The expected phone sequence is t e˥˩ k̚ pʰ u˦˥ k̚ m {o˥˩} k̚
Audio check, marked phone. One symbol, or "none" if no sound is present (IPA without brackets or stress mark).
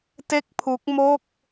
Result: o˥˩